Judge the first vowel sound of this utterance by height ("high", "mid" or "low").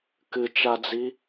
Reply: high